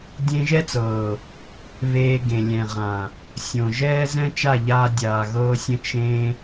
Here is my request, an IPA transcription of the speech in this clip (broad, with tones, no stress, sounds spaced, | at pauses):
dʲ ẽ˧ ʒ ɛ˦ t͡s ɤː˨ | β eː˧ ɡ ẽ˨ lʲ ɛ̃˨ ʁ ã˨ | sʲ õ˨ ʒ ɛː˦ z ɛ̃˦ t͡ʃ a˦˨ ʎ aː˧ dʲ aː˨ ɣ ɤː˧ sʲ ə̃˧ t͡ʃ ẽ˧